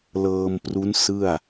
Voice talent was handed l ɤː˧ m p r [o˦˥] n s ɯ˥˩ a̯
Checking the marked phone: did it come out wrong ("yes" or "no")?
yes